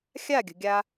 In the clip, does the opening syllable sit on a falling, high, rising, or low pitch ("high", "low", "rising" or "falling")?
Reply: falling